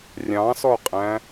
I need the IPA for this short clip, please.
rʲ ɑ̃ s ɔ qʼ æ̃

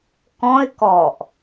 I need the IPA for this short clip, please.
k ɔ̃ ɪ̯ k ɔ ʔ

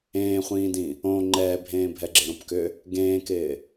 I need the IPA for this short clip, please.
ẽː χʷ ĩː d ĩ | õ ŋ͡ǃ ɛː bʱ ẽː bʱ ɛ ɡ͡ǁ ɪ ɾ õ p k ʏ | ɡ ẽː k ɪː

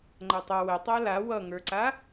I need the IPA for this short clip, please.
ŋ͡ǃ ʌ tˤ ʌ w ə tˤ a l a w ʌ ŋ ə˞ ǀ a

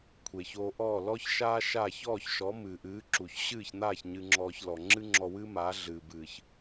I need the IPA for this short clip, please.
kʷʰ eː˩ ç oː˧ ʔ ɔː˥˩ l ɔ˥ ç ʃ aː˥ ʃ a˥˩ ç ɔː˥˩ ç ʃ ɔ˩˥ m ɨː˩ ʔ ɨː˩˥ ǁ u˩ ç ɕ ɨː˥˩ ç n̪ aː˥˩ ç ɲ ɨ˧ ŋ͡ǁ ɔː˧ ç l ɔ˩ ŋ͡ǁ ɨ˥ ŋ͡ǁ ɔ˧ w ɨː˥ m aː˩˥ ɮ ɨː˩ b ɨː˩ ç

